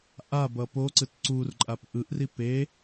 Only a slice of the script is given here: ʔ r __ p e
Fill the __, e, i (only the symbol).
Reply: i